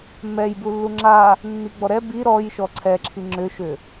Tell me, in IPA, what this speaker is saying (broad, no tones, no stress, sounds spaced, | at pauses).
m ɛ j b u lː u ŋ͡ǁ a | nː i ɡ͡b ɔ ɾ ɛ b i ɾ ɔ j ʃ ɔ ǀʰ ɛ ǁʰ i ŋ͡ǁ ʏ ʃ ʏ